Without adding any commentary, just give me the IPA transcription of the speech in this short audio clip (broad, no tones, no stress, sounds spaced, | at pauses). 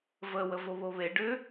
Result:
v ə w ə v o β o β e ɖ ʏ